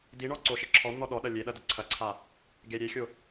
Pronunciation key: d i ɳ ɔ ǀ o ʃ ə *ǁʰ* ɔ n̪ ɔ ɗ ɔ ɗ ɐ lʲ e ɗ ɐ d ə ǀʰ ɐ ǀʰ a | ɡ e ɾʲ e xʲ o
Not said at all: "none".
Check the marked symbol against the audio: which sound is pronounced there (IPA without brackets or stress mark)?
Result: ǁʰ